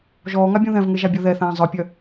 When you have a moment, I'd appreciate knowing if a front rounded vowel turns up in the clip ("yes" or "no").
yes